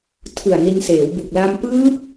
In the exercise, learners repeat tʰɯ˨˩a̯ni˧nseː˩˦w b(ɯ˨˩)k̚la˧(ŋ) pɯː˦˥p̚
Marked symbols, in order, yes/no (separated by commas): no, no